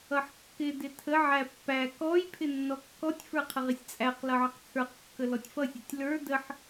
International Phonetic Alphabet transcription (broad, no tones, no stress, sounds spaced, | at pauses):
ʌ ħ kː ɪ d ɪ tʰ ə ʕ æ pː æ k ɔ j pʰ ɪ nː ɔ kː ɔ tʲ f ə˞ qʰ ə ʁ ɪ sʲ t͡sʼ æ q l ʌ ʕ ə q t͡sʰ ə˞ q kː ə l ɔ tʲ f ʌ sʲ ə tʲ l ə˞ d ə ħ